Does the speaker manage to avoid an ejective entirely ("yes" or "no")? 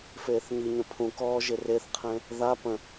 yes